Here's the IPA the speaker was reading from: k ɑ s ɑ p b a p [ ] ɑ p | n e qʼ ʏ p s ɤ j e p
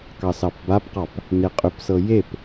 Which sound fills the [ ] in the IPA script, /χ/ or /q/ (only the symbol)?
q